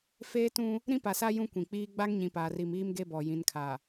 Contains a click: no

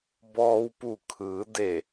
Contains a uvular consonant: no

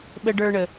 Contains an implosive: yes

